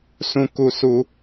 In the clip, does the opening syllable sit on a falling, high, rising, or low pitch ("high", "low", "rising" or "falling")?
low